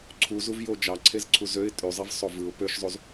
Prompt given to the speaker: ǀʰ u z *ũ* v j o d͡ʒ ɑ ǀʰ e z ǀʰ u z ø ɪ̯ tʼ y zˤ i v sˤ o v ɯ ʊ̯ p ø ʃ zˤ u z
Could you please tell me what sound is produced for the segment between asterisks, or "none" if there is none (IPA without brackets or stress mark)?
u